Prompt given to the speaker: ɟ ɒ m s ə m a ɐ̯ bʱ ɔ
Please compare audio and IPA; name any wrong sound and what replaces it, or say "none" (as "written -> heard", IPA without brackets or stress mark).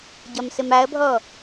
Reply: none